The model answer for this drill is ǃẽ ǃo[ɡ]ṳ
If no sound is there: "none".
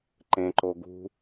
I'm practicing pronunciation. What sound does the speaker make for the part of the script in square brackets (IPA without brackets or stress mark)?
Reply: ɡ